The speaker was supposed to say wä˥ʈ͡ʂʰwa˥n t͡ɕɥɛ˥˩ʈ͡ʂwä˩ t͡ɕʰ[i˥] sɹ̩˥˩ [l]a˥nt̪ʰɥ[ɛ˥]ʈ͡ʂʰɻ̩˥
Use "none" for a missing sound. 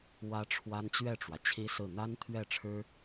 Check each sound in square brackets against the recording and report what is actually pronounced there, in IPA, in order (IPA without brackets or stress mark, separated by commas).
i˥, n̪, ɛ˥˩